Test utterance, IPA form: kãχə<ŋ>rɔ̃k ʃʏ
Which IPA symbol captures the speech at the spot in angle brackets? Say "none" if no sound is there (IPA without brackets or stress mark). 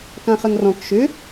ŋ